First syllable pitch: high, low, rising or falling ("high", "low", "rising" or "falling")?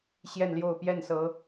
falling